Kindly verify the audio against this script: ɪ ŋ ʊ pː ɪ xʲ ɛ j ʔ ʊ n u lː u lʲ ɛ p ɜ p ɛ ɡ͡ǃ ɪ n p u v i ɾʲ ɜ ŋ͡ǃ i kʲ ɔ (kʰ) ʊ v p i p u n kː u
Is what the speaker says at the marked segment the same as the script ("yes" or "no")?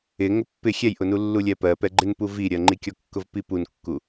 no